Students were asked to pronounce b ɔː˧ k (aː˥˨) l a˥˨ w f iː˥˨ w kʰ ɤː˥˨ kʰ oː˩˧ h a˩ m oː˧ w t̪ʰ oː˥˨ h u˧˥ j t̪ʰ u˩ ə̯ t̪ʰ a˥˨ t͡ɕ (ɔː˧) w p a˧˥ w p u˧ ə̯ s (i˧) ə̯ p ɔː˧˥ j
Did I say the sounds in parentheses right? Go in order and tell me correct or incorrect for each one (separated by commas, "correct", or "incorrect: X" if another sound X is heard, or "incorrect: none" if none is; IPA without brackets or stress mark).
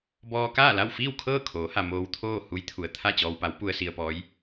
correct, correct, correct